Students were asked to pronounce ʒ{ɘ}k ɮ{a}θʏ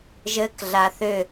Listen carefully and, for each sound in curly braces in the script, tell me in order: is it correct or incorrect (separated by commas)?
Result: correct, correct